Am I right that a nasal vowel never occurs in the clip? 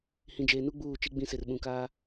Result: no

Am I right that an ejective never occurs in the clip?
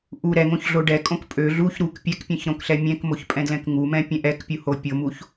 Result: no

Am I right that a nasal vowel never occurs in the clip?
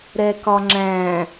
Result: no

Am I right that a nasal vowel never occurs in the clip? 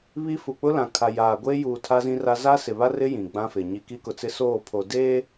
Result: no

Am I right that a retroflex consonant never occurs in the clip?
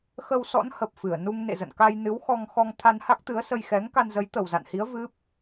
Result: yes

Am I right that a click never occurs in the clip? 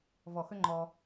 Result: no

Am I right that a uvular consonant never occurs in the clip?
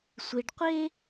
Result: no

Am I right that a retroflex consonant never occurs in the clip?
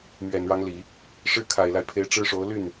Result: no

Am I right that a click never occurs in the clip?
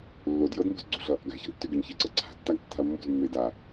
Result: no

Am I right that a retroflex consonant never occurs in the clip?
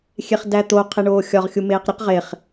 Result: no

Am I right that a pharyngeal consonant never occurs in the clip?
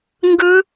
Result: yes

